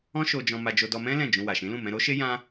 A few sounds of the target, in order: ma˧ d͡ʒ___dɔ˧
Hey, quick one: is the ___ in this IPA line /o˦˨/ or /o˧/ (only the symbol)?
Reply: o˧